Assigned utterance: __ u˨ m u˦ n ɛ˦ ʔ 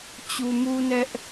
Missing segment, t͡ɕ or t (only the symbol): t͡ɕ